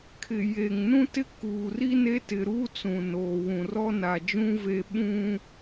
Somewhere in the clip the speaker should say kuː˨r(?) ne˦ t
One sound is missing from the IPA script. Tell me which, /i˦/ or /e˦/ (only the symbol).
i˦